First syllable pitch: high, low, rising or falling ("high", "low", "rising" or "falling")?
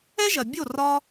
high